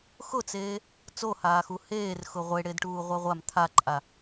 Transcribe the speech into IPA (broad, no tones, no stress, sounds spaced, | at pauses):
x ʊ t͡s eː | t͡s o h aː x u h eː r x ʊ ʁʷ e ɽ e d ʈ uː ʁʷ a ʁʷ a m t̪ʰ a ǃʼ a